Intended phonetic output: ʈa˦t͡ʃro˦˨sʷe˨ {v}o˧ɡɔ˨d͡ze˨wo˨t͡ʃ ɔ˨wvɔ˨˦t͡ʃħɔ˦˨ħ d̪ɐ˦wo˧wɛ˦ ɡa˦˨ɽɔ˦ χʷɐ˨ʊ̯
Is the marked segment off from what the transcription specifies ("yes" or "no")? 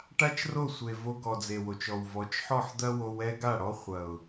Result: no